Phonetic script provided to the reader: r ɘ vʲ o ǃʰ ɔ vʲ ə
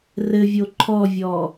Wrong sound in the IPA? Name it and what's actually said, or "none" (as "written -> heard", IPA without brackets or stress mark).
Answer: ə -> ɔ